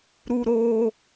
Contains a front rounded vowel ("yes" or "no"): no